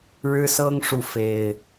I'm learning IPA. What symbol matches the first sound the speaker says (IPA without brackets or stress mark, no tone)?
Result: ɻ